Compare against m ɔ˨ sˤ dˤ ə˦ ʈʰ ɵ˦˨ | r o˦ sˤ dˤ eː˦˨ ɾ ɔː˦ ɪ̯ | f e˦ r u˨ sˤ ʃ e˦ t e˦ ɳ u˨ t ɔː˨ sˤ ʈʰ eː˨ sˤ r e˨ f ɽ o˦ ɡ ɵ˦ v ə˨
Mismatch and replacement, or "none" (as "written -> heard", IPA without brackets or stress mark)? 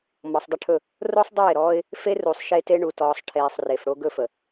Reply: v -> f